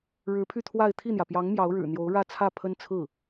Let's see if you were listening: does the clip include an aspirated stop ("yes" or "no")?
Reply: yes